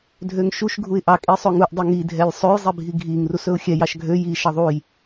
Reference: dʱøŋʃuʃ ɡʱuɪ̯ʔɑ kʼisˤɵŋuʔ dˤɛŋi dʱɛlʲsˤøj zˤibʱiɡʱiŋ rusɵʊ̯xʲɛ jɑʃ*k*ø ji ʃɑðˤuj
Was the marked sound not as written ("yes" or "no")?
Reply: yes